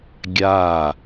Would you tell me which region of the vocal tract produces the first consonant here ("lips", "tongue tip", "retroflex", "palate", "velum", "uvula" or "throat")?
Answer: velum